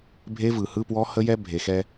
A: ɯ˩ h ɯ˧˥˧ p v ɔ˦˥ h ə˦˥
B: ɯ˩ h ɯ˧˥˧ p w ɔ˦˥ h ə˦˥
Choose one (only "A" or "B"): B